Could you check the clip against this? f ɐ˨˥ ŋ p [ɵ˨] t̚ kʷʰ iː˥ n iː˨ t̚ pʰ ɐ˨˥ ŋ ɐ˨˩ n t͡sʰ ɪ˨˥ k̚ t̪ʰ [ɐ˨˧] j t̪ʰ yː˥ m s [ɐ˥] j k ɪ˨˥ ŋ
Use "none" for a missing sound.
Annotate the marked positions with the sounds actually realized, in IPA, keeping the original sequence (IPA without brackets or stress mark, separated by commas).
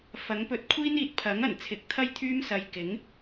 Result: ɵ˧, ɐ˥, ɐ˧